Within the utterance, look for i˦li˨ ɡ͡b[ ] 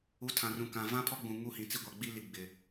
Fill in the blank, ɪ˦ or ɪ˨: ɪ˨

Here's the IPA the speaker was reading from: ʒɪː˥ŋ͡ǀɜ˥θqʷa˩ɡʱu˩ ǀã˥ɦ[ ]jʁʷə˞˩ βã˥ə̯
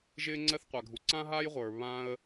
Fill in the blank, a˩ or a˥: a˥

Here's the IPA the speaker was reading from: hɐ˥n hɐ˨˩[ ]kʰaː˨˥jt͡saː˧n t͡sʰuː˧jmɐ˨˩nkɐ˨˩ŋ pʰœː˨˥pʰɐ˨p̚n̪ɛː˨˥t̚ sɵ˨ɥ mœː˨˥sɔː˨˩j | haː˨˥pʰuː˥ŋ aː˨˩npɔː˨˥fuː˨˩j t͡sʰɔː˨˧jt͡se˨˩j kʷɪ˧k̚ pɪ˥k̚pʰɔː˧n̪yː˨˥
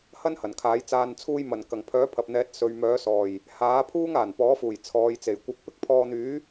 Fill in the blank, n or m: n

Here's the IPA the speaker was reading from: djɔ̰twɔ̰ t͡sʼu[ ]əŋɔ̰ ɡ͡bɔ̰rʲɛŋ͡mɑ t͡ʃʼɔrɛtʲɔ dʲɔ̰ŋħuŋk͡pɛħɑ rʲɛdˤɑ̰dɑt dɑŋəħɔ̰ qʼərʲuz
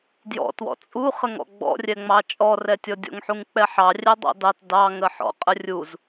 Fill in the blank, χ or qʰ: χ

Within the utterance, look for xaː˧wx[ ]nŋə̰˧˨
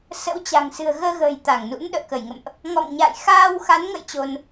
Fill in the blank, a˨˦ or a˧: a˨˦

